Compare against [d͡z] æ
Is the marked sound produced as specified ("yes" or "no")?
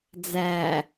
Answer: yes